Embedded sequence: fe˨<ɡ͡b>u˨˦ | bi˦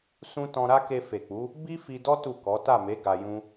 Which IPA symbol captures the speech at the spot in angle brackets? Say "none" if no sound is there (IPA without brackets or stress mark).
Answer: k͡p